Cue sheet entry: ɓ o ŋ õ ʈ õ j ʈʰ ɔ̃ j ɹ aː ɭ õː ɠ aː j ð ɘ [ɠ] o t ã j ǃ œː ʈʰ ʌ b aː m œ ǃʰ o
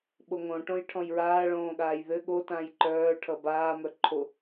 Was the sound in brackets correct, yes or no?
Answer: yes